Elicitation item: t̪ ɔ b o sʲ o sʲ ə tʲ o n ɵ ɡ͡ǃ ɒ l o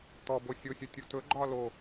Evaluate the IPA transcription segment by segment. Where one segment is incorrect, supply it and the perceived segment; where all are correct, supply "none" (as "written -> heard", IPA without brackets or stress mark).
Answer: n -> t